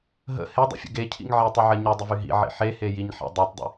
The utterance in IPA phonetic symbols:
ɦ ə̰ h e dˤ ə̰ fʲ ə̰ ɡ e cʰ ḭ ŋ ʕ i tˤ e ʕ ɜ ɲ y dˤ ə v y ɦ ḭ ʕ ḭ ħ e h e j i ɲ ħ ḛ dˤ ɛ tˤ dˤ ḭ

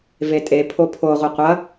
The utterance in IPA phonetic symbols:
v e tʼ e pʰ o pʰ o ʁʷ ɛ qʷ ɐ

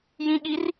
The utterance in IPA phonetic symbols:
j ĩ ɠ i r

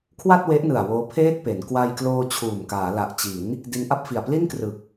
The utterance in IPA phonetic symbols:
kʰ w a˥˩ t̚ w e˦˥ ʔ n ɯ˨˩ a̯ w oː˦˥ pʰ eː˥˩ t̚ p e˩˦ n k w a˧ j k l oː˧ t͡ɕʰ uː˨˩ m k aː˩˦ l a˨˩ ʔ t͡ɕ i˩˦ n | d i˧ n ʔ a˥˩ p̚ f i˨˩ a̯ p l i˥˩ n k r ɯ˨˩ k̚

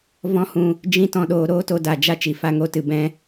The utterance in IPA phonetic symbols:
v ɔ̃˦ h ũ˧ | d͡ʒ ĩ˦ t ɔ̃˧ ɗ oː˧ ɾ oː˦ t o˧ d a˨ d͡ʒ a˦ t͡ʃ i˨ f a˨˦ ŋ o˧ t ɨ˨ b ɛ̃˦

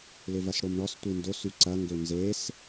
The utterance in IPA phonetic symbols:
l ɪ v ɐ s ɽ o m ɳ ɔ s tʷ i n d o s y ǀ ɐ ŋ ɡ ø n z e s

